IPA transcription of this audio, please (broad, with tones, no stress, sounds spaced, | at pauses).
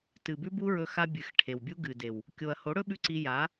t ɨ˨ b ʉ˦ b u˦ ɹ ɵ˧ x a˧ bʲ ɨ˨ x ʈʰ e˨ w bʲ u˦ ɡ ɨ˨ d e˨ w | kʲ o˨ ɐ̯ h o˨˦ ɽ ɵ˦ ɓ ʉ˦ ǀ i˧ j a˨˦